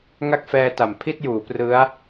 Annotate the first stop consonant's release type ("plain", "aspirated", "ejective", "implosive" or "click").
plain